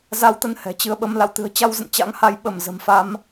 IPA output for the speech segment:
z a˧ w t̪ ə˧ n h ɛ̤˨˩ t͡ɕ ɨ˧ ə̯ ɓ ə˧ m l a̰˧˨ w t̪ ɨ̤˨˩ ə̯ t͡ɕ a˧ w z ə̰˧˨ n t͡ɕ a̰˧˥ ŋ h a˨˦ j ɓ ə˧˩ m z ə̤˨˩ m f a˧ m

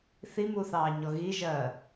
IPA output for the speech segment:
θ i m u θ ɑː ɲ ɔ ɣ i ʒ ɜː

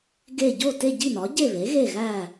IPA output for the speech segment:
ɡ e˥˨ ɟ o˥˨ t e˥˨ ɟ i˥˨ n ɒ˩˥ ɟ e˥˨ β e˩˥ ɣ e˥˨ ɣ æ˥˨

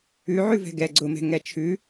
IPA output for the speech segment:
ʉ ʕ ʉ v ɛ̤ ɡ ɛ ɡ͡ǀ ʊ m ɛ̤ ŋ ɛ t͡ʃʰ ʉ

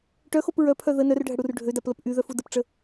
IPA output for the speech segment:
ʈ œ x o p ɹ œ pʰ œ ð ə n œ r ɖʱ ə ɽ u r ɖʱ ø d a p l ə p ʔ y ð œ f u d ə p ʈ͡ʂ ə

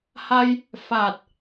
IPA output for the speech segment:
h a˧ j | f a˨˩ t̚

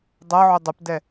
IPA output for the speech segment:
dˤ ɐ ʕ ʏ dˤ ʏ p d ɛ

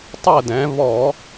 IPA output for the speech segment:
tˤ əː˦˨ d ɛ̃ː˩˧ β ɔ˧˩˧

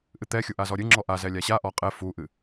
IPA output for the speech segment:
ʔ ɨ t̪ ɛ xʲ u ʔ a z ɔ ɾʲ ɨ ŋ͡ǁ ɔ ʔ a z ɛ lʲ a ɕ a ʔ ɔ qʼ ɛ f u ʔ ɨ

